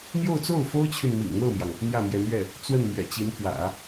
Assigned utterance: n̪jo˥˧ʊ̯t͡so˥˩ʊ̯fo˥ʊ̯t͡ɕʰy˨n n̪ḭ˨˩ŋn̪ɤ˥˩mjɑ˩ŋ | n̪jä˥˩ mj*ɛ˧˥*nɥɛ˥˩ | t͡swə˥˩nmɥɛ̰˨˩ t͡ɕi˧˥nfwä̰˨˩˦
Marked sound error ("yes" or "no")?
no